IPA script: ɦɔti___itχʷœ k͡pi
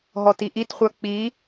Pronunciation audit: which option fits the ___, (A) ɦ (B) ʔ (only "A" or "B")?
B